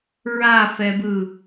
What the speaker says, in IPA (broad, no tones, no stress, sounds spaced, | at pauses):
ɹ a f ɛ b ɯ